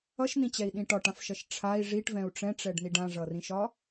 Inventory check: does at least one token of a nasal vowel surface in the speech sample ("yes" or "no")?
yes